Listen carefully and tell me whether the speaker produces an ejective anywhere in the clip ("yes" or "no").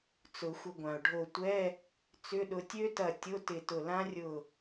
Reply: no